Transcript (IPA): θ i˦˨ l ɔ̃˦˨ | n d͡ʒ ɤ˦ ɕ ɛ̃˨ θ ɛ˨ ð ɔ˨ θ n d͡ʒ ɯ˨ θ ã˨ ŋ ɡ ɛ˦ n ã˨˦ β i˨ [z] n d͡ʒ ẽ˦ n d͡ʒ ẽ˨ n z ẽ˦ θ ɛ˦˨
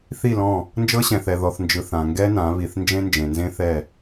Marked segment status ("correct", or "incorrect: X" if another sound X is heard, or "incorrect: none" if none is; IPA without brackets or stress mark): incorrect: θ